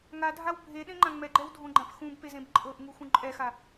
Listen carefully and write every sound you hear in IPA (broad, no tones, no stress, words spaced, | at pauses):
ŋadʱaw bʱeɗẽŋ͡ǃã ŋ͡mɛɡ͡ǃɛwdʱõɡ͡ǃãp xũbpezẽb ǃʼɤʔŋuxũ ǃʼɛxa